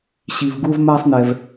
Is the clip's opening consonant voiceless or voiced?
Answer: voiceless